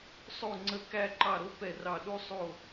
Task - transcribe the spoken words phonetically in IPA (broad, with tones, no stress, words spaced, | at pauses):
sˤo˥˩ ŋ͡ǀə˥˩ kæ˥˩ǃɑ˥˩ɾo˥ pɛ˥˩rɑ˥˩ ɗu˥sˤo˥˩